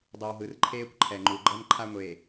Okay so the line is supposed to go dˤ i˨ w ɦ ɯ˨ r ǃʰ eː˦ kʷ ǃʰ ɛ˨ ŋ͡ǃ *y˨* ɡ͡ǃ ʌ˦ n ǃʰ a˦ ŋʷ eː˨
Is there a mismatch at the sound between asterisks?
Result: yes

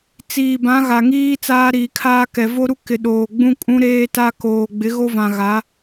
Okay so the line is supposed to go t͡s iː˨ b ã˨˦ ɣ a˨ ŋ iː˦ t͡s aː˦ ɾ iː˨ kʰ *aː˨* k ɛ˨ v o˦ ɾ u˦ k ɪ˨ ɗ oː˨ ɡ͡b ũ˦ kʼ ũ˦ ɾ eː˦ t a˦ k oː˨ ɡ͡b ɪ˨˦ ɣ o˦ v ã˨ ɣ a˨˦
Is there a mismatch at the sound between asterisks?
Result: yes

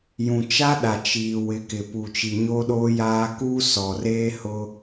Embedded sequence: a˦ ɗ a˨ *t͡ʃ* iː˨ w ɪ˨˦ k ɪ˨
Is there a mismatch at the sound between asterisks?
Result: no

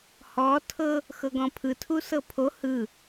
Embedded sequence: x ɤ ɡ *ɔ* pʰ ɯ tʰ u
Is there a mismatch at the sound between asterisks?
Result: yes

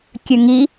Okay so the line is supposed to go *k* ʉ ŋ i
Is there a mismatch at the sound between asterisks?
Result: yes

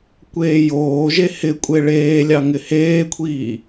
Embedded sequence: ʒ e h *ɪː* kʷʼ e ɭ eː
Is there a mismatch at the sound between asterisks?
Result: yes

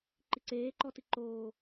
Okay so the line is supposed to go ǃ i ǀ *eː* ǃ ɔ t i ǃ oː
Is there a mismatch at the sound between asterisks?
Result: no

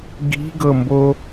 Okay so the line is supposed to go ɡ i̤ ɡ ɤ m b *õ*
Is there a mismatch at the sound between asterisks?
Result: yes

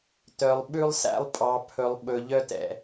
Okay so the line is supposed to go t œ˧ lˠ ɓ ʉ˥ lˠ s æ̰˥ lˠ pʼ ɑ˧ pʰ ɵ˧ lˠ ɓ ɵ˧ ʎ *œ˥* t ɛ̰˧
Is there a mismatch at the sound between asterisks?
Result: no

